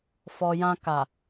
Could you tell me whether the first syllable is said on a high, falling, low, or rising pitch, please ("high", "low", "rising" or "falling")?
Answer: low